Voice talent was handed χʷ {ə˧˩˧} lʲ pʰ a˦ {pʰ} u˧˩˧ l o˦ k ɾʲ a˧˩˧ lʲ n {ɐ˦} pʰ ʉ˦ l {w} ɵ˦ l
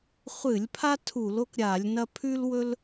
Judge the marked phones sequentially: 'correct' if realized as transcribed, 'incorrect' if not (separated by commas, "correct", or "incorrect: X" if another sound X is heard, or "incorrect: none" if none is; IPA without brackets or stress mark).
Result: incorrect: ɨ˧˩˧, incorrect: tʰ, correct, correct